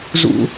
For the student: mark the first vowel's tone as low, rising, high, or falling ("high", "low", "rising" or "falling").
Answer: high